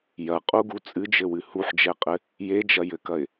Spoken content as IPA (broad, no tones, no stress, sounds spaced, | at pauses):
j ɐ qʼ u ɡ u t͡sʼ ɨ d͡ʒ ɘ w ɨ h u ħ d͡ʒ ɛ qʼ ɘ | j e d͡ʒ ɐ j ɘ k ɐ ɪ̯